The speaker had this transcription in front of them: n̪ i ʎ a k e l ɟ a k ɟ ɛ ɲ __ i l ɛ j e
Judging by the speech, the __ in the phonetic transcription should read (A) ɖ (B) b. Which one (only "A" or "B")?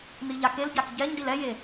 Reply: A